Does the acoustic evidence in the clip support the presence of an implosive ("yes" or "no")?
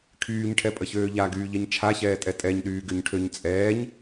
yes